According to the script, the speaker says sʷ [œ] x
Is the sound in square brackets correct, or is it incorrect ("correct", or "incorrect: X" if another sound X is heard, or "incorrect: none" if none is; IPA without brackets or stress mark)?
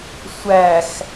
incorrect: æ